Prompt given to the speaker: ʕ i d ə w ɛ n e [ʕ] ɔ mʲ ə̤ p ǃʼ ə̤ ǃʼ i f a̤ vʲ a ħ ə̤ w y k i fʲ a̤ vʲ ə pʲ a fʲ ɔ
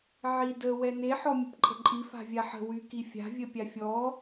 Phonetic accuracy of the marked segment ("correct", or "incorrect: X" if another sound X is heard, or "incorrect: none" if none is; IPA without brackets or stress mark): incorrect: ħ